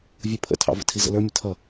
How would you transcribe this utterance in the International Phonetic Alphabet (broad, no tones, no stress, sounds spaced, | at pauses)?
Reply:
vʲ u pʰ ə̰ tʰ ɑ̰ v ə̰ tʰ i z ə̰ l ə˞ mʲ ə tʰ ʌ